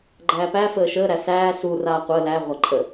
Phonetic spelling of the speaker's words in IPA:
ɡ͡ǃæːpæ fəːʃəː ɾæsæː su raːqʷəː læ ʁʷaǃʼə

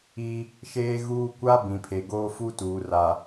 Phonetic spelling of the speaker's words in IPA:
i˦ | ʃeː˦ɣuː˦ kʷa˦ bĩ˨pʰe˨ɡoː˦ fu˦tuː˨r a˨

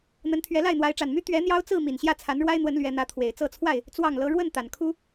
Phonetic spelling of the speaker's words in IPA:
n̪ə˨˦nt̪ʰɥɛ˨˦la˥˨ɪ̯ n̪wa˨˦ɪ̯ʈ͡ʂa˨˩nmy˦ t̪ɥɛ˨˦ n̪jɑ˦ʊ̯t͡sɹ̩˥˨ mi˨˩nɕjä˥˨t͡sʰa˨˦nɻwa˦ɪ̯ n̪wə˨˦n lɥɛ˨˦n̪ä˨˦t̪ʰwe˨˩ɪ̯ t͡sɤ˥˨t͡sʰwa˥˨ɪ̯ | t͡swɑ˥˨ŋlɤ˦ ɻwə˥˨n t̪a˨˩nkʰu˦

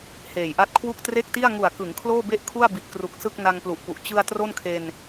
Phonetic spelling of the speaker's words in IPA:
heː˨˩jʔa˦˥t̚kʰwu˥˩k̚ tre˥˩k̚ti˥˩a̯ ŋu˨˩a̯kɯ˩˦ŋ kʰloː˥˩be˥˩ʔkʰu˥˩a̯ bi˨˩t̚kru˨˩k̚ sɯ˥˩k̚na˧ŋplu˨˩ʔpu˨˩ʔ t͡ɕɯ˧a̯ tro˥˩nkʰe˧n

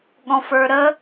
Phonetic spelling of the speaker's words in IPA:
ɠɔ̃fə˞ɾə

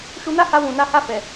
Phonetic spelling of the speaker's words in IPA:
ʃu˧na˦ha˧ wũ˨na˨˦ha˦˨ fɛ˨

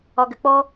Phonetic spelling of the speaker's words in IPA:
ɒɡɘk͡pɔ

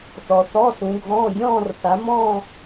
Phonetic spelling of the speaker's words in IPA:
θɔ˨θɔ˧˥˧sũ˨˦ɡʱɔ̃ː˧˥˧ dʲɔ̃ː˥˧rθa˨˦mɔ̃ː˥˧

